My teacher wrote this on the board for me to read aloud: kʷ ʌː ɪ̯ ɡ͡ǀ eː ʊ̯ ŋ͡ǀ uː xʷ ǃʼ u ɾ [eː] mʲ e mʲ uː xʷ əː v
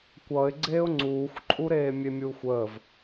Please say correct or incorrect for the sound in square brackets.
correct